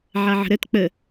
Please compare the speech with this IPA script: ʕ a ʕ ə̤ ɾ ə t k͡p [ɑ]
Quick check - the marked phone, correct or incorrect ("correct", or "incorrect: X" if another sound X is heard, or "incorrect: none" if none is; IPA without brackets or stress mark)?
incorrect: ə